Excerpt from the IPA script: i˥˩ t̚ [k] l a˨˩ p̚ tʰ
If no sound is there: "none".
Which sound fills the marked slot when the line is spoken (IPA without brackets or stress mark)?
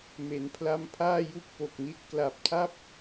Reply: k